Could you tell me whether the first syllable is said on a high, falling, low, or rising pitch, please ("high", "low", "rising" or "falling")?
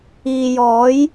low